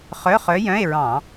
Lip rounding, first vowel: rounded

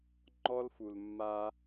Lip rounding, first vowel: rounded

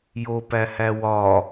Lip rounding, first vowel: rounded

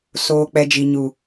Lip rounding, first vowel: rounded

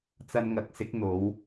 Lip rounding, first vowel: unrounded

